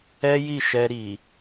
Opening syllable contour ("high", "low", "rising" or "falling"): high